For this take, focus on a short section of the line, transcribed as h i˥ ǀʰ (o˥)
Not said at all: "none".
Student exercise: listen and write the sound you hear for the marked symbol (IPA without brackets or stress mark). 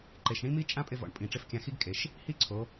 o˩˧